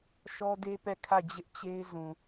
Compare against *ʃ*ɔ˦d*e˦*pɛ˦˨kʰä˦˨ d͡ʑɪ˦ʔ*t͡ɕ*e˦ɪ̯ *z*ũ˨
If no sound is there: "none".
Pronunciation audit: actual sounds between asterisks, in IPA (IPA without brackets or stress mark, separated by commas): ʃ, e˦, t͡ɕ, z